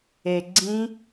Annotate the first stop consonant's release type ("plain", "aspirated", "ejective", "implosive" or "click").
click